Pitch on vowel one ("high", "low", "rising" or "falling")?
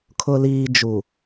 low